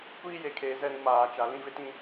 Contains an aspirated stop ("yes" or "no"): yes